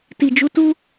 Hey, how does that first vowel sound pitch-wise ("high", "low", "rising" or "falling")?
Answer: low